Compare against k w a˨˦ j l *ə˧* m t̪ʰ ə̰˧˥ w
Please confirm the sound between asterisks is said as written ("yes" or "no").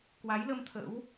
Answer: yes